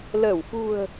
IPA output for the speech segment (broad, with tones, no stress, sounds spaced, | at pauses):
l əː˧˩ w f ṳ˨˩ ə̯